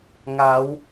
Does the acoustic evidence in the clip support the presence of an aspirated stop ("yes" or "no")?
no